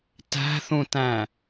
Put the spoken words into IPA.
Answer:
t æ̤ θ ũ t æ̃

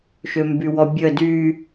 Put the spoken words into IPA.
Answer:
ʃ ø m b y w ɔ bʲ ə d y

